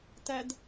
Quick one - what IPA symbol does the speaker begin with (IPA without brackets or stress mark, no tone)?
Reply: t